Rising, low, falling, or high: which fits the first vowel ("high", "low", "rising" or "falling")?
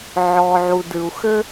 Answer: low